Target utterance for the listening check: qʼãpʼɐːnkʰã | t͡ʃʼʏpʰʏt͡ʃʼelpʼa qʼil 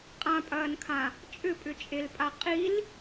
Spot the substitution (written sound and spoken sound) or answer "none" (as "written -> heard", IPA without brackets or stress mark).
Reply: pʰ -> pʼ